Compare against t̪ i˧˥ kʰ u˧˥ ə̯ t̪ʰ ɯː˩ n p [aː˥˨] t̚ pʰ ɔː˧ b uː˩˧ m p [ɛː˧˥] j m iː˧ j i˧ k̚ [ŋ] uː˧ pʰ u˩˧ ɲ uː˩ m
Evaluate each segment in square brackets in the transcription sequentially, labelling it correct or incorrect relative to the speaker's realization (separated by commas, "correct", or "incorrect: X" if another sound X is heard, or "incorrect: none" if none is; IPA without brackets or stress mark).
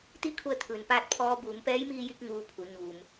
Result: correct, correct, correct